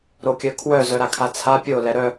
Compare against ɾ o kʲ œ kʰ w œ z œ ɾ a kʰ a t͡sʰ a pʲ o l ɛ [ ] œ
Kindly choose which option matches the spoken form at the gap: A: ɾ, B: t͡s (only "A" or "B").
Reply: A